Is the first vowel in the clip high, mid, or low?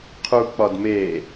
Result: high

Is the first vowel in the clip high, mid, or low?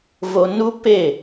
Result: mid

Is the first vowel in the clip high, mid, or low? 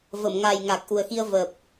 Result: mid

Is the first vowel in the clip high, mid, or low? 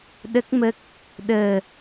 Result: mid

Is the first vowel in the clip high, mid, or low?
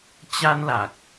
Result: low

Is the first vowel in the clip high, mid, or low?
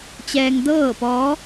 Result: mid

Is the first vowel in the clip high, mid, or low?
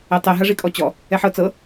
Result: mid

